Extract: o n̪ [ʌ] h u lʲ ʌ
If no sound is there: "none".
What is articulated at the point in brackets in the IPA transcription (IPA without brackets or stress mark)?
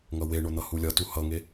ʌ